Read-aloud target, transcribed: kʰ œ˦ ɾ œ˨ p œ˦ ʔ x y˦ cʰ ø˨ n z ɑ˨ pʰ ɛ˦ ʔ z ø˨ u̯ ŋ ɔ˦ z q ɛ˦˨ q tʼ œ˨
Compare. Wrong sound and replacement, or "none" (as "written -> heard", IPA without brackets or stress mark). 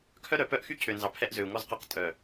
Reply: none